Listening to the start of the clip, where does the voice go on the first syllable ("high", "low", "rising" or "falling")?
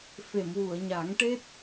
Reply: low